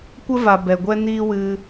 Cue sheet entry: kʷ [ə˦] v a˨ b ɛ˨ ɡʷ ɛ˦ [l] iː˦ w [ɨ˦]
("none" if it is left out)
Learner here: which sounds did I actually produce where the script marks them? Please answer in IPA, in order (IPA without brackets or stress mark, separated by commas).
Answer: ə˦, n, ɨ˧